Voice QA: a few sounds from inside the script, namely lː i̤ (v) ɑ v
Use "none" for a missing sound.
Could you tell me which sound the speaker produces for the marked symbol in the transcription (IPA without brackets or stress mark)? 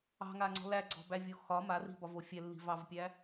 v